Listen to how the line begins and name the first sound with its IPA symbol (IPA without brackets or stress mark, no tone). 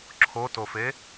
ǁʰ